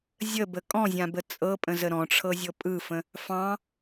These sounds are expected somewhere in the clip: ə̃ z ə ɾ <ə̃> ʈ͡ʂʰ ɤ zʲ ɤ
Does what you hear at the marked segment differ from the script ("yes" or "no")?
yes